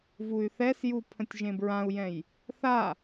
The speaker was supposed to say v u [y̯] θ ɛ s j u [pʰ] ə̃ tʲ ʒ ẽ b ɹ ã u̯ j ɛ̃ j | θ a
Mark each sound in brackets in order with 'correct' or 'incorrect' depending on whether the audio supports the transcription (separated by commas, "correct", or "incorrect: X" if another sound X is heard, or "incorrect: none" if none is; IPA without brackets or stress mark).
correct, correct